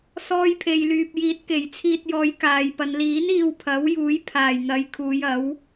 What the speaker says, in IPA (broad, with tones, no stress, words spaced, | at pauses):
sɔː˧jpʰe˨jlyː˨p̚ jiː˨˥t̚ke˨˩jt͡sʰiː˧t̚jɔː˨˧j kaː˨jpɐ˨˧n liː˨˥n iː˧wpʰɐ˨˥w juː˨˥jpʰaː˨˩j n̪ɐ˨˧jkʰuː˨˧jɐ˨˥w